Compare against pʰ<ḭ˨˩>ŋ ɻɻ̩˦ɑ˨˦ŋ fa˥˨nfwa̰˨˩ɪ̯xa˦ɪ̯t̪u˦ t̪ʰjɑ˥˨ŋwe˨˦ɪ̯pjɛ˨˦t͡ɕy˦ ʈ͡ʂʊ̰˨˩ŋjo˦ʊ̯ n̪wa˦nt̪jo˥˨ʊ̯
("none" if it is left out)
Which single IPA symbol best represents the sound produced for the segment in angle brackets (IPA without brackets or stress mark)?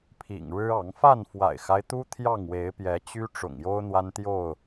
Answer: ḭ˨˩